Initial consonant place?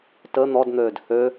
alveolar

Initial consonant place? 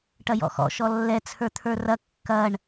retroflex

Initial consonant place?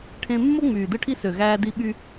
retroflex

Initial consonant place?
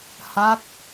glottal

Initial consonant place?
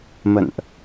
labial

